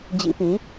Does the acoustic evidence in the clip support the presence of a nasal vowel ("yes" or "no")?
yes